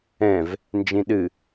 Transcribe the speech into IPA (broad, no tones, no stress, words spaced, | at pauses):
ɛ̃v | nd͡ʒĩɗɨ